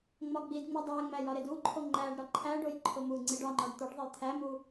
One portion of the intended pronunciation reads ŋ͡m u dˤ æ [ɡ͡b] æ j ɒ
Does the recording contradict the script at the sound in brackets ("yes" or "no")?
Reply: yes